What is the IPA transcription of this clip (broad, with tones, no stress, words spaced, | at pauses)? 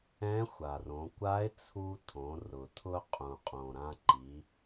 ɛ̃˧˥xʷa˩rõ˩˧ kʷa˧˥ɪ̯t͡sʰu˧tʰõ˩˧ rʊ˩ tʰʊ˧qʼũ˩qʼõ˩ ɾã˧ǃi˩˧